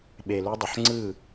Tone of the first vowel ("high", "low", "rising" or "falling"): low